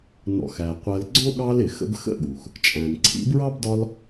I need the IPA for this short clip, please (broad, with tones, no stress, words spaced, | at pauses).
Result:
nɔ̰˨xæ˩ qʷɜ˨lɡ͡ǀɔ̃˥ɠɑ˦l ɪ˩ xə̰˦bxə̰˥ɠu˩x | t͡ʃʼæ̃˩nǀʰḭ˦bɹɑ˥bdɒ˦l